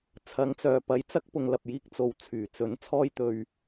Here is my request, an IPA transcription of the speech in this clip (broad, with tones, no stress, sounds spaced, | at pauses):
t͡sʰ ɐ˨˧ ŋ t͡s œː˨ p ɐ˨˧ j t͡s ɐ˥ k̚ p ʊ˨ ŋ l ɐ˨ p̚ j iː˧ k̚ t͡s o˨ w t͡sʰ yː˨˩ t͡s ɵ˨˥ n t͡sʰ ɔː˥ j t̪ ɵ˧ ɥ